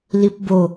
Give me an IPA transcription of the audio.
l i p b o

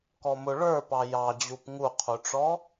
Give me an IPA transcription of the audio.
k ɔ m ʊ ɭ ə˞ p ɑ j ɑ d͡ʑ u p ŋ u qʰ u ʈ͡ʂ ɔ

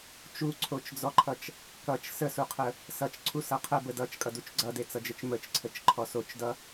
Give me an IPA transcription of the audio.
t͡ʃ u ǀʰ o t͡ʃ d͡z ɔ ǃʰ ʌ t͡ʃ | k ʌ t͡ʃ s ə s u qʰ ə | s ʌ t͡ʃ ǀʰ u s ʌ qʰ ə b ə d ʌ t͡ʃ kʼ ʌ d u t͡ʃ ɡ͡ǀ ʌ d e t͡s ʌ d͡ʒ ə t͡ʃ m ə t͡ʃ ǀʰ ə t͡ʃ ǃʰ ɔ s o t͡ʃ d ʌ

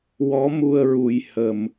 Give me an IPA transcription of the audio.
w ɔ˧˥ m u˧ ə̯ ɹ u˨˩ j h ə˨˩ m

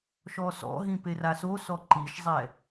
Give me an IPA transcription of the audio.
ʃ ɔ s ɔ̰ ɦ ĩ p e r a s o s ɔ ǃ i ʃ zˤ ɛ

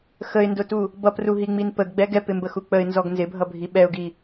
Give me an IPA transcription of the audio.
x ə ɪ̯ n d ʊ t u | b ʌ p r u ɦ i ŋ͡m i n p ə ɡ ɡ͡b ɛ ɡ ɛ p ɪ m b ə x u k͡p ə ɪ̯ n z ɔ ɡ n z ɪ bʱ ʌ bʱ i ɓ ɛ ʊ̯ ɡ i

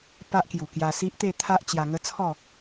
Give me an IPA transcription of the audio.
p a˦ ʔ k j u˨˩ k j a˧ s i˦ ʔ t̪ e˥˧ t̪ʰ a˦ ʔ t͡ɕ j a˧ ŋ ə˦ t͡sʰ ɔ˥˧

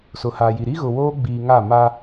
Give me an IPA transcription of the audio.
s ʊ˨ h a˨ j i˨ ɾ i˦ ɣ ʊ˨ w oː˦ ɡ͡b iː˨ ŋ a˦˨ m aː˦

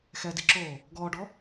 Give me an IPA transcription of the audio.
x ɛ d i ǁ oː | ɡ ɔː ɖ ɔ

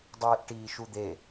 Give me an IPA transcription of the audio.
dˤ iː ʔ ʈ iː ʃ u d̪ e

